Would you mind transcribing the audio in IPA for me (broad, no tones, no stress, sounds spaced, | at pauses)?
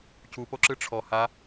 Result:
cʰ u p o ǁ ɯ ʈ͡ʂʰ ɔ h a